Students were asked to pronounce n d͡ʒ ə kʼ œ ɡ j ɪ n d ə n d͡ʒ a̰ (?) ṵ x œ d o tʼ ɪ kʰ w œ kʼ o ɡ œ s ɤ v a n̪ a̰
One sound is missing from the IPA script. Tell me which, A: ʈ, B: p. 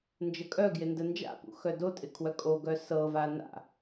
B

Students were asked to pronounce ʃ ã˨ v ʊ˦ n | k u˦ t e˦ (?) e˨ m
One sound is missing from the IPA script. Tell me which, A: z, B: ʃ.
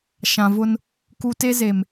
A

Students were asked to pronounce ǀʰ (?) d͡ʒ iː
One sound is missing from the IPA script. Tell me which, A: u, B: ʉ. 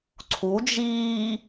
A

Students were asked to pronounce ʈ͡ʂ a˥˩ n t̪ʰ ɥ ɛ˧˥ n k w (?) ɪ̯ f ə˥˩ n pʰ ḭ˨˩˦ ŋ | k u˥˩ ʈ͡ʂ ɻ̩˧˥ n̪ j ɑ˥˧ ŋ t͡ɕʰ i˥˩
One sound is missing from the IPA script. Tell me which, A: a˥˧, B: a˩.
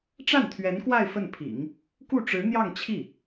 A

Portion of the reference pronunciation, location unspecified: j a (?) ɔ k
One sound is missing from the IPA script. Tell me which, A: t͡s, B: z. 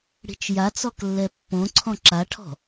A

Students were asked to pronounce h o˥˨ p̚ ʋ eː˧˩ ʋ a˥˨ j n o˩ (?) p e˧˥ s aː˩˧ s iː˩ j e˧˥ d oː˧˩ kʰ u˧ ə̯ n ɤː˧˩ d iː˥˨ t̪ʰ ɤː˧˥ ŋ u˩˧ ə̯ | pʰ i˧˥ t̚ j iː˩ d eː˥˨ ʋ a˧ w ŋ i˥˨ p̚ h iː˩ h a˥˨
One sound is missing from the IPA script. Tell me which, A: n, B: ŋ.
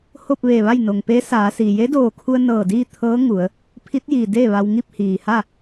B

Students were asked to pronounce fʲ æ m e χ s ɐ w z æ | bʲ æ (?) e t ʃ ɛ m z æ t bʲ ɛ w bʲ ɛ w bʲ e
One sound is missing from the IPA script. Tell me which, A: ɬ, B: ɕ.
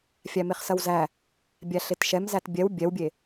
A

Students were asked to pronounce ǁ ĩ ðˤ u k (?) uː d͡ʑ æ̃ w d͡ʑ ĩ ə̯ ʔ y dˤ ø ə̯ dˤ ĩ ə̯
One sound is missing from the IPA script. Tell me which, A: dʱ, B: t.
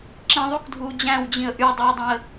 A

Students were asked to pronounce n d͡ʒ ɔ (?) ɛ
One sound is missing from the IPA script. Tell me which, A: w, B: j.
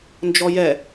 B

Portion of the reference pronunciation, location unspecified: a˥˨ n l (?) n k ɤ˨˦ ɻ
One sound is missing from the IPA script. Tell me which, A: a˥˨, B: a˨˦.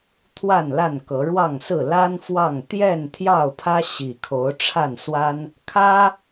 A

